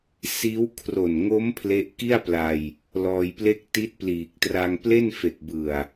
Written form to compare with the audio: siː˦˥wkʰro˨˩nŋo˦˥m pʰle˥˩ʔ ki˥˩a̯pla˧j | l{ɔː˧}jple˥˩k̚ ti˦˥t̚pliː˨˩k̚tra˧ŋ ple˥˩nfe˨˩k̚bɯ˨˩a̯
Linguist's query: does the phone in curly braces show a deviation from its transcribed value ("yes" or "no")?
no